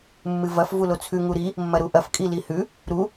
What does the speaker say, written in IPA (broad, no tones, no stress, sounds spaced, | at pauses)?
mː ɨ v ɐ f v u l o t͡sʰ ʉ ŋ u ɾ i | mː ɐ ɾ u ʔ ɐ f kʼ i l i h ʉ | ɾ u